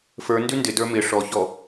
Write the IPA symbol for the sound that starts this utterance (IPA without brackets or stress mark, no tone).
f